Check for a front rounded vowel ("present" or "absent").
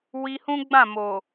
absent